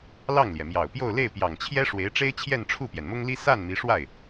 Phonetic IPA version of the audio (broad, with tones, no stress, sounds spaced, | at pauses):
l ɑ˥˩ ŋ l j ɛ˩ m j ɑ˨˩ ʊ̯ p j o˥˧ ʊ̯ l e˥˩ ɪ̯ p j ɑ˨˩ ŋ t͡ɕʰ j ɛ˥ ʂ w e˧˥ ɪ̯ ʈ͡ʂ e˥ ɪ̯ t͡ɕʰ j ɛ˥˧ n ʈ͡ʂʰ u˥˩ p j ɛ˩ n m ʊ˥ ŋ l i˥ s a˥˩ n m i˧˥ ʂ w a˥˩ ɪ̯